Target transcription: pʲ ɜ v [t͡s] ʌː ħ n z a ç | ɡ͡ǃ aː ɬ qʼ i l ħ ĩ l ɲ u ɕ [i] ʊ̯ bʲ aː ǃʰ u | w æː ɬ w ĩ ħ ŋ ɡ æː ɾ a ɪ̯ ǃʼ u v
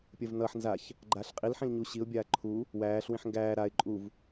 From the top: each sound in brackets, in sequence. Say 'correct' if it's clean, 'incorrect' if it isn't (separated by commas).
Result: incorrect, correct